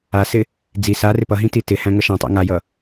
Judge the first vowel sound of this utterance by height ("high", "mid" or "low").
low